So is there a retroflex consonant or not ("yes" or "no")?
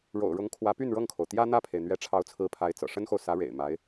yes